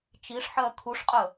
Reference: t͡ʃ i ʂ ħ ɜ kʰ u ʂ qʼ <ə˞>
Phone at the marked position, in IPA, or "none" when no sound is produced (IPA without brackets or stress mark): ə